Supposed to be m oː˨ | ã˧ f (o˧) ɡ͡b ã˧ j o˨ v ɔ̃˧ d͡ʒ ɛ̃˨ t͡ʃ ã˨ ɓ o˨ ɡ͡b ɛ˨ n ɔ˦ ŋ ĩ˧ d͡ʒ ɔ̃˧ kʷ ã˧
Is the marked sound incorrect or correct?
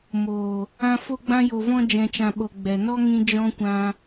correct